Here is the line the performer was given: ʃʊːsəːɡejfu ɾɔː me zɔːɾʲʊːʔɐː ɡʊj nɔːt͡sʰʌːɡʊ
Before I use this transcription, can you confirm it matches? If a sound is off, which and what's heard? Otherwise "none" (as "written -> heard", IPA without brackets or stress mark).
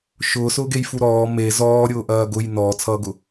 əː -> ʊː